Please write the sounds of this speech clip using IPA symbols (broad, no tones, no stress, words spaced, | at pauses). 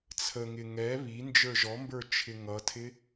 t͡sʰəŋɪ ŋɛ βi nd͡ʒə˞ʒɔmbə˞ t͡ʃʰɪŋʌtʰɪ